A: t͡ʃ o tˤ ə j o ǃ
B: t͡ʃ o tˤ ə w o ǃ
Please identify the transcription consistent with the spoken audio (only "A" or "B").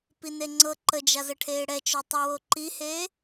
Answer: B